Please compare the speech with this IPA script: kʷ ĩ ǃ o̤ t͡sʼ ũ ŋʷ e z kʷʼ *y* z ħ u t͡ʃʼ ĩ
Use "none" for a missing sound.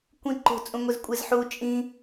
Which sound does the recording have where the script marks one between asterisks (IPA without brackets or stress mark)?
e